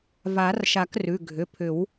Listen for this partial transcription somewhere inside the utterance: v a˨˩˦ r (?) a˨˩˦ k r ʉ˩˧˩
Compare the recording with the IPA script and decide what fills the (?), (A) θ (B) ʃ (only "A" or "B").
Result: B